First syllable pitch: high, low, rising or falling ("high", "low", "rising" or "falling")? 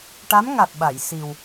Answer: rising